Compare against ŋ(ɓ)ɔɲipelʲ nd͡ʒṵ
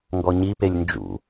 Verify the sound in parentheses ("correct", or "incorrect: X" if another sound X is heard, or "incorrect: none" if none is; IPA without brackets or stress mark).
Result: incorrect: ɡ